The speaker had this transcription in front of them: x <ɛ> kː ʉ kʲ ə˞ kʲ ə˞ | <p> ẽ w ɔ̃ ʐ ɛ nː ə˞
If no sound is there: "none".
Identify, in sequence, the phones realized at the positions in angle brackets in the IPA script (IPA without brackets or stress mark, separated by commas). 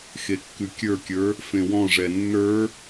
e, f